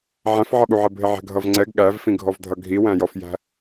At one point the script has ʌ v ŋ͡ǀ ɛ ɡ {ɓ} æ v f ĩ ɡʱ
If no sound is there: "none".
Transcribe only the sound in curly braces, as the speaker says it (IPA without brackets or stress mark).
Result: ɠ